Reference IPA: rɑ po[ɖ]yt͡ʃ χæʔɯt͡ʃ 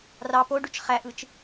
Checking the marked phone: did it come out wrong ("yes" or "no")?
no